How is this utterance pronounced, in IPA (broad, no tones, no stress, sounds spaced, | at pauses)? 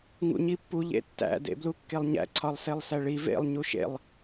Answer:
ŋ ṵ ɲ i pː u ʎ ḛ tː æ̰ d ḛ b l u kː e lˠ ɲ æ̰ ǀʰ ɒ lˠ s e lˠ s æ ɭ i v ḛ lˠ ɲ u ʃ ḛ lˠ